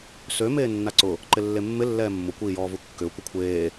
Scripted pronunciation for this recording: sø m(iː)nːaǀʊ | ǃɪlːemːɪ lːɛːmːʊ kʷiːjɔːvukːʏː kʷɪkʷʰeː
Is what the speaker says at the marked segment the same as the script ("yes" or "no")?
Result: no